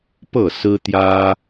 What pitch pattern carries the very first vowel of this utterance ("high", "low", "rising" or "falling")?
falling